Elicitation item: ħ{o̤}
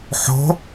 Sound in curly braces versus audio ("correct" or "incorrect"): correct